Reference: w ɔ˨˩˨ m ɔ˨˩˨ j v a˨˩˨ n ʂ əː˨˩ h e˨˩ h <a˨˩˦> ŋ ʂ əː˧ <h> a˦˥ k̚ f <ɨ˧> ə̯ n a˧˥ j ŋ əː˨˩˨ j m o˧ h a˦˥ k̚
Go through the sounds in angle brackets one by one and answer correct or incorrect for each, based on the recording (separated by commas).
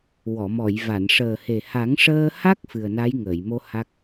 correct, correct, incorrect